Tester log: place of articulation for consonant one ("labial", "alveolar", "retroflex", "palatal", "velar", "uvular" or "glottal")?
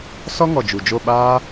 alveolar